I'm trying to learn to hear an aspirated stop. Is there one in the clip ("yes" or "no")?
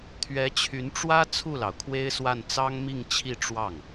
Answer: yes